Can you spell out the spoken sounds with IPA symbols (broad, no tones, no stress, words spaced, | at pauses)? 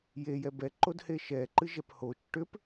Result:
jejɛ bɛǃodhe ʃɛǃɨʒɛp hot͡ʃ ʈʏp